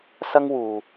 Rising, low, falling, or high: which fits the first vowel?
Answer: high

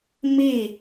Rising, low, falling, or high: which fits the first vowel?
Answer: falling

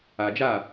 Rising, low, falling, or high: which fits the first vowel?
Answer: low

